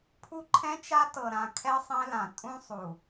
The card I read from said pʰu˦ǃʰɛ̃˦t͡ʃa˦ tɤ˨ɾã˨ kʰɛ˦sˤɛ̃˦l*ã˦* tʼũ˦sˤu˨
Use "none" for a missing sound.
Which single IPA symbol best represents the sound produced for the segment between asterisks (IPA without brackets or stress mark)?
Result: ã˨